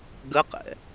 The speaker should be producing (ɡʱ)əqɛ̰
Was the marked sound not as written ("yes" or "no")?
yes